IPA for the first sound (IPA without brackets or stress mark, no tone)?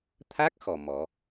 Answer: t̪ʰ